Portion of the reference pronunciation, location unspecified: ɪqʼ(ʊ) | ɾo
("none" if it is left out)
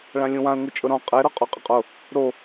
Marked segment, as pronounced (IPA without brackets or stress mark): ʊ